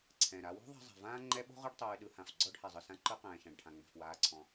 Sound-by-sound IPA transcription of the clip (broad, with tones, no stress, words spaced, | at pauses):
ǀʰɛ̃˩ɾa˨ wo̤˦ ðˤa̤˦zˤɛ̤˩vãː˥ ŋ͡ǃɛ˦ɓo̤˥ ʁɯ˦ɖtˤʉː˨ɗɯ˨hã˩f ɡ͡ǀɔ˦ɖhɛ˩zˤɯ˩sã˦ ǃɯ˦ qɛ̃ː˩ʃã˩ɖʈʰã˩ ŋ͡mɛ̤˩fwaː˨ǀʰɔ̃˩